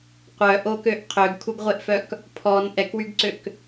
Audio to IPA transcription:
qʷœʔokøʔ qʰøɡkʰuɡʁʷeʔfœk | pʰɔn ʔɛkwyɡǀøk

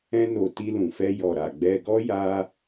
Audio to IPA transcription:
ɛ̃˦no˧ ti˧lũ˨fɛ˧ jɔ˨ɾa˨ ɡ͡bɛ˧ ɡɔ˦ ja˦

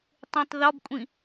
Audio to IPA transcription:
tˤẽtˤðɒbkʷʼĩ

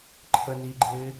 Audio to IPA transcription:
ǃʰə niɡ͡ǃɪː

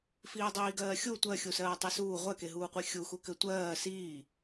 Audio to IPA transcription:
fiːdˤiːɡɜːxʲu tʷɜxʲusɜː tˤisuː ʁʷɜkeɦuːqʷi xʲuxu kɘtʷɜː siː

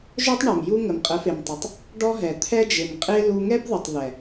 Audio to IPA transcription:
ʒœ˦tˤ ɳœ˨mju˦ ŋə˨mqʼə˨˦fe˨mtˤə˨tˤ | ɖɔ˦ɦɛ˨ t̪ʰɛ˦d͡ʒe˨mqʼe˦ lu˧ŋɛ˦bðə˨tˤðɛ˨

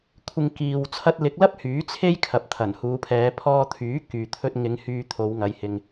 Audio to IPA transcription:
kʷʰɪ˨ŋ kiː˨w t͡sʰɐ˧t̚lɪ˨˥k̚lɐ˥p̚ hyː˨˥t͡sʰe˥j kʰɐ˨˥p̚t̪ʰɐ˨˩nhuː˨˧pʰɛː˨˧ pʰɔː˧t̪ʰyː˨˥ kyː˨t̪ʰɵ˧t̚ŋɪ˨˧ŋ hyː˧t̪ʰo˨˧wŋɐ˨˧j hɪ˧ŋ

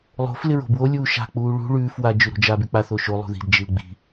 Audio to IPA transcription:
lˠo̤f lɪɹo̤bwo lʲuːʃa̤ k͡puːɭṳ ɭʉːf wa d͡ʒʉɾo̤d͡ʒa byk͡pa θoʃo lˠṳði̤d d͡ʒilɡ͡bi̤

